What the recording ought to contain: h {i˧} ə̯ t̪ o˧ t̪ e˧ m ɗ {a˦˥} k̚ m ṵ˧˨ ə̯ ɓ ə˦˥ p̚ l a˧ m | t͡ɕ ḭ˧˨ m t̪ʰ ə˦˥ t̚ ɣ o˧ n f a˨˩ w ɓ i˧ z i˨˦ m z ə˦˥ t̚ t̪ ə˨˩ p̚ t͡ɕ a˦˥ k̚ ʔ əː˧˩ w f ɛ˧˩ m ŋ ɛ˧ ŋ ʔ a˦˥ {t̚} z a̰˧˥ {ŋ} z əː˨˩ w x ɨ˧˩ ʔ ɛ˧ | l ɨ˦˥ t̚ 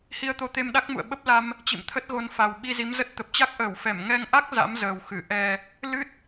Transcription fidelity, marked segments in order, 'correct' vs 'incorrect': correct, correct, incorrect, incorrect

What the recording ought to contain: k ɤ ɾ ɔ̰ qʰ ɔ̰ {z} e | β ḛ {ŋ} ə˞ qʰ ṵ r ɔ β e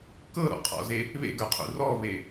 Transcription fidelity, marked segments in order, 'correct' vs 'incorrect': correct, incorrect

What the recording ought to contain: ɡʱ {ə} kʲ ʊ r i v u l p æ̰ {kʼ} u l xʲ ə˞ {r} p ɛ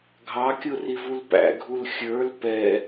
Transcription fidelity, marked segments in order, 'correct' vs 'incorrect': incorrect, incorrect, incorrect

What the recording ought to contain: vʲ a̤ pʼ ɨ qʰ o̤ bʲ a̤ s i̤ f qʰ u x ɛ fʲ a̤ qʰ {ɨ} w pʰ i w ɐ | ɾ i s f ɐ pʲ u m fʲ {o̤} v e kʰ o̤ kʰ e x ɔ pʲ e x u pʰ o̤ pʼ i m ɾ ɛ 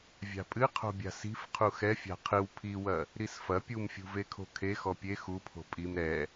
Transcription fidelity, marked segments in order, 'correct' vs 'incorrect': correct, incorrect

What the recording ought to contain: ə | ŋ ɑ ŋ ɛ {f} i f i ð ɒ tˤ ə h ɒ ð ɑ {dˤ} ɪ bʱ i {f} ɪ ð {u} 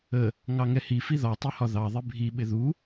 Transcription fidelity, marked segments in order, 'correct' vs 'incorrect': incorrect, incorrect, incorrect, correct

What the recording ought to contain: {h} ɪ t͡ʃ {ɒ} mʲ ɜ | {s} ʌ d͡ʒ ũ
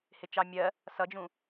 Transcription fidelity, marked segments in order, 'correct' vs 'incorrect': correct, incorrect, correct

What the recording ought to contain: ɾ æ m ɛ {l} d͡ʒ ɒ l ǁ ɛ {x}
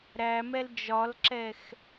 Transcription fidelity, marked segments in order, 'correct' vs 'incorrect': correct, correct

